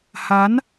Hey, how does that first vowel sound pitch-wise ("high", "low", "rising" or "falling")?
rising